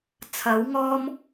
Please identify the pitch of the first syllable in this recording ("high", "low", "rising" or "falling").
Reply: rising